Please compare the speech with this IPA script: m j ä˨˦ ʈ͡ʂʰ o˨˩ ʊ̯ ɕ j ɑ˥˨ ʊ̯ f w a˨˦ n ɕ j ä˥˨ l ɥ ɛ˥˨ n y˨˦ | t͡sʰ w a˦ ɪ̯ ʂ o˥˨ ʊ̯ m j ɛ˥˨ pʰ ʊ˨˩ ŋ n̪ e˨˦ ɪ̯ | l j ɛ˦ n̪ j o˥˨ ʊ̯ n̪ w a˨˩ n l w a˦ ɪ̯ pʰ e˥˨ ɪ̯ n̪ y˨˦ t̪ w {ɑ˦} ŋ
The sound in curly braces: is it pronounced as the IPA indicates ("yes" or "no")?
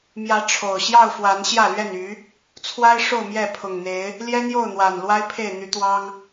yes